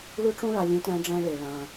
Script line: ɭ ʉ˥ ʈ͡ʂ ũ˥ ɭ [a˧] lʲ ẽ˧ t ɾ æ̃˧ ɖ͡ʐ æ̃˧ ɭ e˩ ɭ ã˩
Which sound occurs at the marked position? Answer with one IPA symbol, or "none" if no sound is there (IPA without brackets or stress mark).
a˧